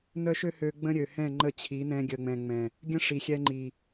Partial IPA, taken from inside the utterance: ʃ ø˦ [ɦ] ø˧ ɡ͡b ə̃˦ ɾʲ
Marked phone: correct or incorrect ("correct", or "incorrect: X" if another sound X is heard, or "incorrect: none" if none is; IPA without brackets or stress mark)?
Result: incorrect: h